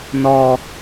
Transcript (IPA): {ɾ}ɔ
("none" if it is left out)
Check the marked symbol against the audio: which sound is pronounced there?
n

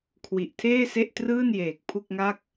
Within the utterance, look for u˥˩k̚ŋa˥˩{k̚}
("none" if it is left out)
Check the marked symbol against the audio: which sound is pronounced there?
k̚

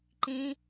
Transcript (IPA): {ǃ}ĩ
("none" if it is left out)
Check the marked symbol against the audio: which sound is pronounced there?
ǃ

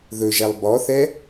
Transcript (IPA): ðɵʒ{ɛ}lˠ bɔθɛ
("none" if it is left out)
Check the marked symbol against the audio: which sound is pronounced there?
ɛ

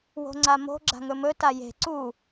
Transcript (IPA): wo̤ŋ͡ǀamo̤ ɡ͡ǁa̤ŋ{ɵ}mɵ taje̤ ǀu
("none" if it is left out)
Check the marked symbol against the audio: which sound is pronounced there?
ɵ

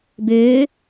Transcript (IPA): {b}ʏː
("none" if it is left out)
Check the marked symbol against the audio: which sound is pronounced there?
b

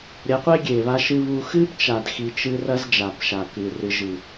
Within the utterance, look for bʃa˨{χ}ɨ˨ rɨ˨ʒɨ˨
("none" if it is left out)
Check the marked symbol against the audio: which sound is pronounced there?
k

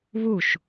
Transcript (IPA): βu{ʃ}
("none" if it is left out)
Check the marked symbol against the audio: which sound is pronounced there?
ʃ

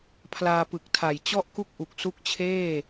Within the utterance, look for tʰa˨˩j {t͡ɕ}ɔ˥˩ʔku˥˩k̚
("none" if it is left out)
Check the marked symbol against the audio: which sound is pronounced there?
t͡ɕ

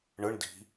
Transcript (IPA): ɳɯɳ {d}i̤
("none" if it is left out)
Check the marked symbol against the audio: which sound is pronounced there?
d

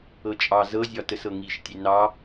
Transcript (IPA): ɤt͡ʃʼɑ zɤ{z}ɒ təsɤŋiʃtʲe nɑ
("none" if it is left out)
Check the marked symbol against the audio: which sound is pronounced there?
zʲ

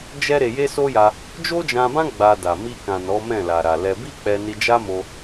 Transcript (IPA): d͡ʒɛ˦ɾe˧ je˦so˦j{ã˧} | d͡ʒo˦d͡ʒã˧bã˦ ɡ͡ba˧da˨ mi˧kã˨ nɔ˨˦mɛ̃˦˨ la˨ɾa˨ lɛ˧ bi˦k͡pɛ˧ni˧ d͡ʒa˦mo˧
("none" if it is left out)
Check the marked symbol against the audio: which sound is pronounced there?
a˧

